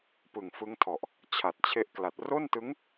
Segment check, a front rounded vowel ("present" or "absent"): absent